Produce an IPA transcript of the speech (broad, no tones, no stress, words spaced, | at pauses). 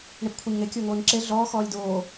ɳɪpkʷʰeɲŋe kʲʊːŋoːɲǁe ɮɔː xɔːlʲdoː